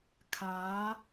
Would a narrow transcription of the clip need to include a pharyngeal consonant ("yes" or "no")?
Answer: no